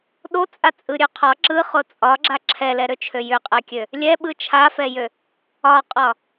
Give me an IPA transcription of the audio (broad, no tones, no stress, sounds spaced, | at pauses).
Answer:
ɗ o t͡sʼ a t͡sʼ ɯ ɾʲ ø qʰ ɒ ǁ ɯ χ o t͡sʼ ɒ ɡ͡ǁ a ǁʰ ɛ l ɛ ɾ ø t͡ʃʰ ø j ʏ qʼ ɛ kʲ ø | lʲ ɛ ɓ ɯ t͡ʃʰ a f ɛ j ø | ɒ qʼ ɒ